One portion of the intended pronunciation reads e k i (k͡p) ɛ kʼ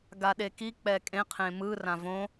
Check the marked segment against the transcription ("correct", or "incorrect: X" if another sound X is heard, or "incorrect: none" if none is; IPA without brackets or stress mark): correct